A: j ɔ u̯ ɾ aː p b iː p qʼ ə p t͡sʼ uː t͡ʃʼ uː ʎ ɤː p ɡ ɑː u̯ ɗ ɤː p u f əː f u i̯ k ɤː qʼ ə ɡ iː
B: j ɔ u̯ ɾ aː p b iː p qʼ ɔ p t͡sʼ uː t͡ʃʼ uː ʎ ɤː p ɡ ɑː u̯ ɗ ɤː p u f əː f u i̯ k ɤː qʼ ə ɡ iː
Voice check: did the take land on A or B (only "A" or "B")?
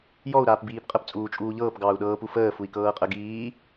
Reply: A